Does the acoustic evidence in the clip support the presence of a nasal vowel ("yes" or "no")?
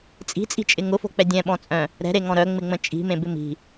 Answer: yes